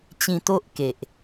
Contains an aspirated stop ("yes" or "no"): no